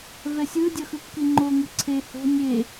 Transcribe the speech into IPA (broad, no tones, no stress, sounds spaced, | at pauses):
v ɛ sʲ ɯ dʲ ʌ x ɯ kː i ŋ͡ǃ o ŋ ɯ ǀʰ e h o̤ nʲ e